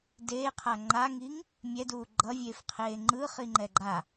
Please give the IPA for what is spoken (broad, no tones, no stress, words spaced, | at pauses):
deːqʰa ŋ͡ǃaŋiːŋ | mʲɛduː ɡ͡ǃʌvʲeːfqʰeː ŋ͡ǃɯːχiŋ͡ǃɛ ɡ͡ǃa